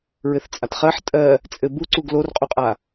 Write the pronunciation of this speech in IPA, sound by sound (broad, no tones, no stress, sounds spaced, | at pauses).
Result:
ɹ ɘ θ t͡sʼ a t χ ɜ ħ tʼ ɜ | t͡sʼ ɘ b u ǀ u ɡ l o r qʼ u qʼ a